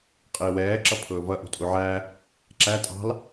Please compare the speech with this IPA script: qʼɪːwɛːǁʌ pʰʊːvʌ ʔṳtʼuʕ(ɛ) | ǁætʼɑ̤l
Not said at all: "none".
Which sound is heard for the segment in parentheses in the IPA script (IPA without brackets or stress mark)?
æ